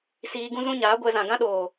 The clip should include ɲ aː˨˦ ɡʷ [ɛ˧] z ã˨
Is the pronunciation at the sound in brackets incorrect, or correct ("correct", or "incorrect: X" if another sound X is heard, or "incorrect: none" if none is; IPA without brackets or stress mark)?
correct